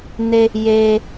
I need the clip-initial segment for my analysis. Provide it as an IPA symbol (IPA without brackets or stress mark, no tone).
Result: n